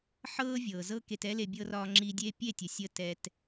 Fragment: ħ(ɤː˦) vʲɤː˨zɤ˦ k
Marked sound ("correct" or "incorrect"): correct